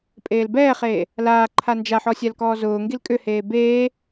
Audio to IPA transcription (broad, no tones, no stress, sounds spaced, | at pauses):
pʼ eː l b ɛː χ eː | l aː ǃʰ a n d͡ʒ a ħ ɔ sʲ a l k ɔː z ʊː ŋ ɡ i l kʼ ʏ h eː b eː